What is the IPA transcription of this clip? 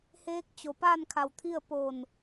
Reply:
heː˧˥k̚ t͡ɕo˩paː˥˨n kʰa˧˩wt̪ʰi˥˨ə̯ poː˧˩n

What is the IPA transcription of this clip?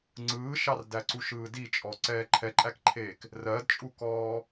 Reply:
ŋ͡ǀɯːʃɑrdæǀuʃ ɯːdit͡ʃʼɔ ǀɛːǃʰɛǃʼækǃʰeːk | rɜdt͡ʃʼukɔː

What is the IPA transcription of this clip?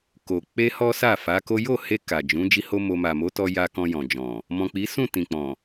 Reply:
ko˨ k͡pe˧ hɔ˦sa˦˨ fa˨˦ko˦ jo˦˨he˧ ka˨d͡ʒũ˨˦ d͡ʒi˦ho˦mo˧ ma˨mo˨˦tɔ˧ ja˧ kɔ̃˧jɔ̃˨d͡ʒɔ̃˨ | mɔ̃˨k͡pi˨˦ sũ˦˨ tĩ˨k͡pɔ̃˨

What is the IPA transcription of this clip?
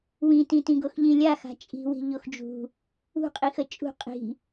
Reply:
wĩtĩtĩɡox ʎĩlʲaxa̤ t͡ʃʼi̤wi̤ ʎoxd͡ʒṳ | ṳqʼixə t͡ʃʼṳ qʼi̤

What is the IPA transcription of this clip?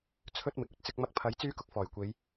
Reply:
t͡sʰɵ˥t̚ mɪ˨k̚ɵ˨t̚ t͡sɪ˧k̚mɐ˧k̚pʰɐ˨˥j t͡syː˥kʊ˧k̚fɔː˨˩jkʷe˨˧j

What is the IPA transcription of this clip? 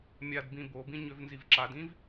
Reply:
mʲadbĩ bobĩ ɲøvnzivǁadĩv

